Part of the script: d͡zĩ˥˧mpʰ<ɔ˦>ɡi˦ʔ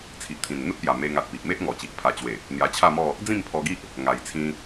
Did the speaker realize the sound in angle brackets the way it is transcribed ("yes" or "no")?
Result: no